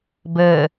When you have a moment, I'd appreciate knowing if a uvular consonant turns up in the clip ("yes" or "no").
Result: no